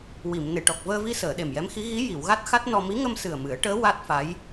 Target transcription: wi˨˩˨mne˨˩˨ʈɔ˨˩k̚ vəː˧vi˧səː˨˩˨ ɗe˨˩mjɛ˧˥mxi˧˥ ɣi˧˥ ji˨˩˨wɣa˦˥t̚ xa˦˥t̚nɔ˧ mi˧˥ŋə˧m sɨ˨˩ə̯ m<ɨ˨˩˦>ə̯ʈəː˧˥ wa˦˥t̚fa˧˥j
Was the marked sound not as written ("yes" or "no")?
no